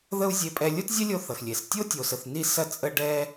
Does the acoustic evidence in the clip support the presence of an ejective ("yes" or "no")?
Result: yes